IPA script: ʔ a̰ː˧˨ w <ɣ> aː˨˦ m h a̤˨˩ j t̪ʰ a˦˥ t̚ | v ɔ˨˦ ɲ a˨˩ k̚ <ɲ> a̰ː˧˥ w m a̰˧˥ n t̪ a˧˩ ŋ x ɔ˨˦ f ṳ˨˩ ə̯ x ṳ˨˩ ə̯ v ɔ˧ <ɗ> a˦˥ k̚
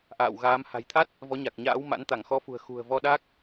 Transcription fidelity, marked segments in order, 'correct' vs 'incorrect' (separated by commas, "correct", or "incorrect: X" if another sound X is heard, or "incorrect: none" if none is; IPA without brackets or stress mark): correct, correct, correct